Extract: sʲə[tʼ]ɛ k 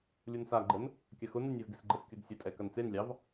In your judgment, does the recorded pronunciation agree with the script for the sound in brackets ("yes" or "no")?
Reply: yes